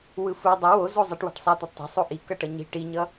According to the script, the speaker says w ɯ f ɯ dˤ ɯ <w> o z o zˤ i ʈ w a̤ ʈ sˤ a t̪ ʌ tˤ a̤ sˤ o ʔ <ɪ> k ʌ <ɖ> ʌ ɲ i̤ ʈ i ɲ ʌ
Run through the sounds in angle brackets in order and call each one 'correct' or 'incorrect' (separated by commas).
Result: correct, incorrect, incorrect